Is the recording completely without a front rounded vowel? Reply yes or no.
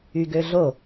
no